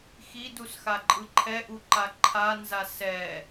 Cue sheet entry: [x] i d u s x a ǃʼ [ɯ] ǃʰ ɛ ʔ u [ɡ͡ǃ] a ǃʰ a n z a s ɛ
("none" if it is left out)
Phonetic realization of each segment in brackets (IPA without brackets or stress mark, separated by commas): x, ɯ, ǃ